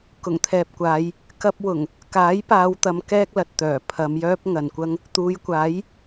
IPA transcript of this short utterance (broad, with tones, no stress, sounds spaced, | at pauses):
k ʊ˨˩ ŋ t̪ʰ ɛː˨ p̚ kʷ aː˨˧ j | k ɐ˥ p̚ w ʊ˨˩ ŋ | k aː˨˥ j p aː˨˧ w t̪ ɐ˨˧ m k ɛː˥ k̚ l ɐ˨ t̚ t̪ œː˨˩ pʰ ɐ˨˧ m j œː˥ p̚ ŋ ɐ˨ n kʷ ɐ˥ ŋ | t̪ uː˨˧ j kʷ aː˨˥ j